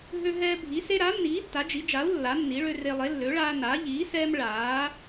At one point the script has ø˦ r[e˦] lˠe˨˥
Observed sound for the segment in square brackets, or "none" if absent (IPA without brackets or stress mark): e˦